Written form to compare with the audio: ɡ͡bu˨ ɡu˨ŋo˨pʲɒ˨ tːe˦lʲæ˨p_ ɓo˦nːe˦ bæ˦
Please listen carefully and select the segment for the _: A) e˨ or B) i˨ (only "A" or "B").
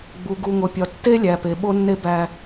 A